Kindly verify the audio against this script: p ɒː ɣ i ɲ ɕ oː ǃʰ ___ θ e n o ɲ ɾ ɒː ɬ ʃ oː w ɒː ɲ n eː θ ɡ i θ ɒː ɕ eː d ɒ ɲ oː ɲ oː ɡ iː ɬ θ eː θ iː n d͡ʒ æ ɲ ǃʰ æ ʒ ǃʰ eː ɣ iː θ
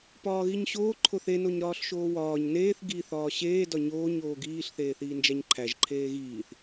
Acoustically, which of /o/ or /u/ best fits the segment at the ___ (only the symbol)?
o